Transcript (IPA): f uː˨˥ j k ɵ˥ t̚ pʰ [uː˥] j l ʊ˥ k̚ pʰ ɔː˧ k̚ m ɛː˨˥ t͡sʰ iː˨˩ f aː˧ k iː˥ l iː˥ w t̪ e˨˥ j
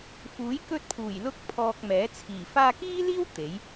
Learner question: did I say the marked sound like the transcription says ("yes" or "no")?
no